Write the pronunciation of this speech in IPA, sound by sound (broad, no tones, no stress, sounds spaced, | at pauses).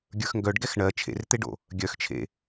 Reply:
ɡʲ ə˞ x ŋ ɡ œ ɖ ɡ ɛ x ɳ ɜ t͡ʃʰ ḛ r t̪ e ɖ o̰ | ɡʲ œ x t͡ʃʰ ḛ